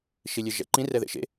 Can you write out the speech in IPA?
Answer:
ʃ i lʲ e ʒ ɛ̰ ǃ ĩ r ɛ ð ḛ ʃ ḛ

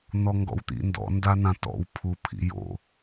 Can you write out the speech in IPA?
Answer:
n̪ ɔ ŋ ɡ ɔ̰ w t̪ ḭ n d ɔ̰ n d a n̪ ã t ɔ̰ w pʰ u pʰ ḭ j o̰

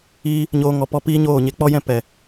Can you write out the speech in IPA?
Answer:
iː˦ | ɲ oː˦ ŋ ɔ˧ p ɔ˦ p iː˦ ɲ oː˦˨ ɲ e˧ k͡p ɔ˦ j ɛ̃˦˨ p ɛ˨

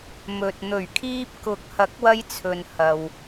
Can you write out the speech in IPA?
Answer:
m ɵ˨ t̚ n̪ ɵ˨˩ ɥ kʰ iː˧ p̚ k ʊ˨ k̚ h ɐ˨˥ k̚ w ɐ˧ j t͡sʰ ɵ˨ n h ɐ˨ w

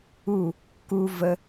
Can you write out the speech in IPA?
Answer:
u˦˨ | k u˥ v ə˥

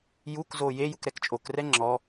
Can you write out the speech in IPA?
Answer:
j u k z o j e j u k ɾ ɛ k t͡ʃʼ o k r ɛ ŋ͡ǁ ɔ

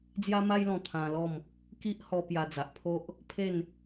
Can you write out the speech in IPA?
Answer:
d͡z j a˦ m a˦ j l ɔ̃˧ t̪ʰ ã˧ l ɔ˥˧ m | k i˦ ʔ h ɔ˧ p j a˧ d͡z a˨ ʔ pʰ o˦ ʔ | pʰ e˥˧ n

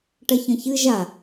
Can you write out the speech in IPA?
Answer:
ʈ ɐ ç ɐ̃ ç ɨ ʒ a

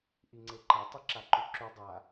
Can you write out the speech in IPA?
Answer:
ʔ i ŋ͡ǀ e ǃ ɐ tˤ e ǁ a ǃ ʉ ǁ ʉ dˤ a

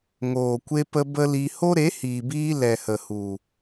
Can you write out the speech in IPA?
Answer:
ŋ oː˨ kʷ e˧ p ə˧ b ə˦ l i˧ h o˦ ɾ e˨˦ h iː˨ b iː˧ l ɛ˨ h ə˨ h u˨

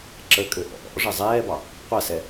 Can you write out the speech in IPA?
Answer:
ǁ ə kʼ ø ʔ ɔ̰ ʔ ɔ̰ ʐ ə zˤ ɛː b ɑ | qʷ a s ɛ

